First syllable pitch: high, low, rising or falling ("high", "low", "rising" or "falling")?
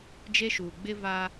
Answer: high